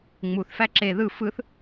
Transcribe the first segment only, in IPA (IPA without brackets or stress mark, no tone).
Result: ŋ͡m